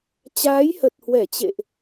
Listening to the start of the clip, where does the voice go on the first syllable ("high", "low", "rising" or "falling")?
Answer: rising